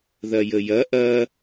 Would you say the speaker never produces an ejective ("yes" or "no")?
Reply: yes